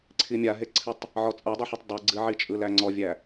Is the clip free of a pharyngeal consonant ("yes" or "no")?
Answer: no